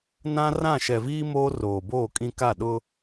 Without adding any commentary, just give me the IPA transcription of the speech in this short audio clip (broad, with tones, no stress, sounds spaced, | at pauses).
n ã˦ r ã˦˨ ʃ ɛ˨ v iː˦ m oː˦ r oː˨ b oː˦˨ kʼ ĩ˦ k a˦˨ ɗ ʊ˦